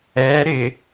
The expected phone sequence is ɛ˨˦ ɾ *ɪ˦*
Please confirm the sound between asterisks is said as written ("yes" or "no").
no